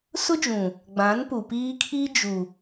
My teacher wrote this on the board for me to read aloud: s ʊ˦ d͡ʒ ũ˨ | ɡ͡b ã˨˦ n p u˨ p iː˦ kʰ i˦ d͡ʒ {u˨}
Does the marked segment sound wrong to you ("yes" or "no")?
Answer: no